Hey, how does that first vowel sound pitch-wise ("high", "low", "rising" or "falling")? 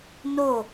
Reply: falling